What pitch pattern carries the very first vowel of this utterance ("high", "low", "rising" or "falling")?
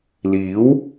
rising